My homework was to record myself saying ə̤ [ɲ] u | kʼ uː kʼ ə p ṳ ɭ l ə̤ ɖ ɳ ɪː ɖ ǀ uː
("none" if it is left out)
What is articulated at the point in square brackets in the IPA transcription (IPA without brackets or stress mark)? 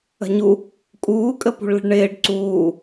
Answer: ɲ